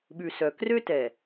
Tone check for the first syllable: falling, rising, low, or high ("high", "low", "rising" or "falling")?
low